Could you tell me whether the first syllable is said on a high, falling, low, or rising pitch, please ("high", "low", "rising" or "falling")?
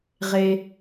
low